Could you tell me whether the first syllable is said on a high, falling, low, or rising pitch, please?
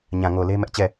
low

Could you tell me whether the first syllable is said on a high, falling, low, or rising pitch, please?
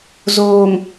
low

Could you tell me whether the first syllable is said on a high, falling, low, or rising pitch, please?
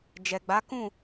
low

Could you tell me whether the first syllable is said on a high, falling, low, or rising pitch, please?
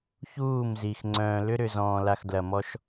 falling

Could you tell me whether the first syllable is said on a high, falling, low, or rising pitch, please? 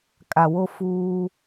low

